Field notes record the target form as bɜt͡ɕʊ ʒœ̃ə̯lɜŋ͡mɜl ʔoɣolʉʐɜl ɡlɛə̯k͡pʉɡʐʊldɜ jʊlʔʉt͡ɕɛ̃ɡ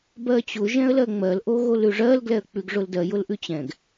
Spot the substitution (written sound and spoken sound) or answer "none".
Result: œ̃ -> ɛ̃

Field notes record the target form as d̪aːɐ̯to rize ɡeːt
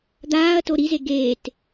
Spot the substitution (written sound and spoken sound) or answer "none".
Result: r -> ɾ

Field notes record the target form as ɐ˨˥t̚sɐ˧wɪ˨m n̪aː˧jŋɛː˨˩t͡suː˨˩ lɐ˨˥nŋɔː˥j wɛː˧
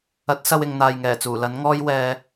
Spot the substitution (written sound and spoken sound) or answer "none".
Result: m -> ŋ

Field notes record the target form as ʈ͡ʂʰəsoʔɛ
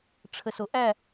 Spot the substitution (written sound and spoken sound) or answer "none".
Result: ɛ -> æ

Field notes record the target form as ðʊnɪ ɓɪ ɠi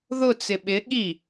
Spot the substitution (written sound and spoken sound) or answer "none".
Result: n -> t͡s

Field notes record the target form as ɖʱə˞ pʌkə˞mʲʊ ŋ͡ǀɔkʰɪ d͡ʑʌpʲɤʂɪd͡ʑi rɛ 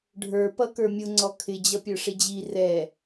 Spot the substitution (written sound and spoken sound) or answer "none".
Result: ɤ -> ə˞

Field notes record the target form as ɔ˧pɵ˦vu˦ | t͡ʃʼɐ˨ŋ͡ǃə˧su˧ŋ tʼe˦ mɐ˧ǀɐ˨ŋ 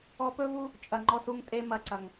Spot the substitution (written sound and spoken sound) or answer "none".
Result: ə˧ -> ɔ˧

